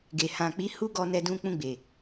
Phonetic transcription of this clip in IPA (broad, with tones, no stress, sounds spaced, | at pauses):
ɡ e˨ h ã˨ k͡p i˨˦ h u˦ ɡ ɔ˧ n ɛ˧ d ũ˧ k͡p ũ˧ ɡ͡b e˨